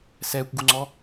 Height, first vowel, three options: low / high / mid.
mid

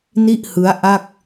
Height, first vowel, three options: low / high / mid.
high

